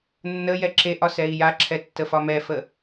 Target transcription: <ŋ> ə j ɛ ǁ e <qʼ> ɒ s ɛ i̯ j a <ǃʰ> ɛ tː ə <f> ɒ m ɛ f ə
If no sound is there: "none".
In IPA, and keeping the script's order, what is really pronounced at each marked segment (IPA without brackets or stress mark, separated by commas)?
nː, ʔ, ǁʰ, f